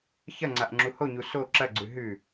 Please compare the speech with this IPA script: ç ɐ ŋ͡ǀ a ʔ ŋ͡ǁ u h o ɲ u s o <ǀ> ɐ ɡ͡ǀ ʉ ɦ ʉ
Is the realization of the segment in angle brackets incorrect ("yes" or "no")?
yes